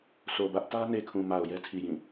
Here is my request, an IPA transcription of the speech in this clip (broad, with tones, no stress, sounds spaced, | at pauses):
s o˨ b ä˦ ʔ t ä˦ n e˨ kʰ ũ˨ m a˨ ʊ̯ j ɛ˦ tʰ i˨ j ĩ˦˨